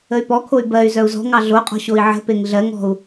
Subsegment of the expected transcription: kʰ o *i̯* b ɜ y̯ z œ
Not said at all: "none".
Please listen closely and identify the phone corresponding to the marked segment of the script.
y̯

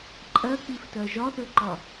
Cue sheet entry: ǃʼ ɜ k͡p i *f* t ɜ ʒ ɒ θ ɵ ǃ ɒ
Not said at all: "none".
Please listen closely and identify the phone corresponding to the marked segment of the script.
f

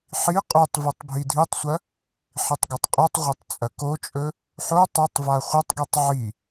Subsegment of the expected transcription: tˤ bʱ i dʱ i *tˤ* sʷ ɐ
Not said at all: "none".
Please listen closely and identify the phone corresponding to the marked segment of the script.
tˤ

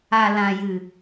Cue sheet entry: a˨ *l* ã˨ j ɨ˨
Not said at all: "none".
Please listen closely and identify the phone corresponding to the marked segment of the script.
l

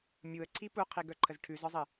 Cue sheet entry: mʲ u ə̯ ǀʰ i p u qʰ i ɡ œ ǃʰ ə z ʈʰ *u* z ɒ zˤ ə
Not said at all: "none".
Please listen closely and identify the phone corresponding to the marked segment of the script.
ʉ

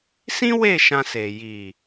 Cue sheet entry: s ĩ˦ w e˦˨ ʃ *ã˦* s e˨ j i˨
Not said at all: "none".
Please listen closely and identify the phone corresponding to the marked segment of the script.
ã˧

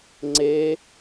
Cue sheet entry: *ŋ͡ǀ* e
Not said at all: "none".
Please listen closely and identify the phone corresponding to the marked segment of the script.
ŋ͡ǀ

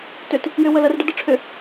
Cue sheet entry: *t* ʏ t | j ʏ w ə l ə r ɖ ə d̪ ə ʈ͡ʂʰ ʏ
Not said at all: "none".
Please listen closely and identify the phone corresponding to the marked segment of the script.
t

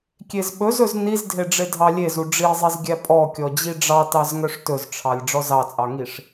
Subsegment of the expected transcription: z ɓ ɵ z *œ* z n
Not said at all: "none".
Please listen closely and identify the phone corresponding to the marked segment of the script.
ɵ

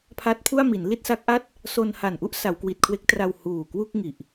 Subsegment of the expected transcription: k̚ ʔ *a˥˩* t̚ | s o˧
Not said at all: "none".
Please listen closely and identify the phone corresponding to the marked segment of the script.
a˥˩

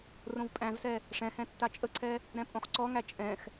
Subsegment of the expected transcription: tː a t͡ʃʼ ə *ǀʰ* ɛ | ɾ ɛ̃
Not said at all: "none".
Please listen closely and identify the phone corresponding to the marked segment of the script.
ǀʰ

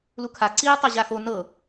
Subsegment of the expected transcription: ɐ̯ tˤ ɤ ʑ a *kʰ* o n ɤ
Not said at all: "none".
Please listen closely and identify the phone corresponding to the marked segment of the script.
x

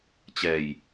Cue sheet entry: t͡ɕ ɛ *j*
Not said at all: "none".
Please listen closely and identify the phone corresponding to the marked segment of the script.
j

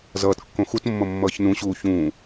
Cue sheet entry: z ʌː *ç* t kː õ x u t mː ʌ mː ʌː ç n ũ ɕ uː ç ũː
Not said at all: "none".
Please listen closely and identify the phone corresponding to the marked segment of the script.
none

